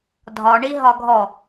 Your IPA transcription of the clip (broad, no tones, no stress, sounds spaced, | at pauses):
dʱ ɒ ɳ i ɦ ɒ ɡʱ ɔ